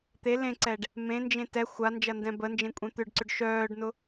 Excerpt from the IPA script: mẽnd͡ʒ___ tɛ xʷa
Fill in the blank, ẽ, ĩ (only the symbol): ẽ